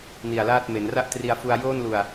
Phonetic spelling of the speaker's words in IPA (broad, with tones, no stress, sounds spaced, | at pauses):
n i˨˩ a̯ l aː˥˩ t̚ m e˩˦ n r a˥˩ ʔ t r i˧ a̯ f u˧ a̯ j oː˥˩ n l u˨˩ a̯